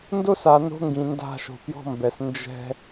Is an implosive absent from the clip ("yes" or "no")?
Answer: yes